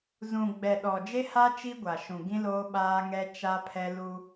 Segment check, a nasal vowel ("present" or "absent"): present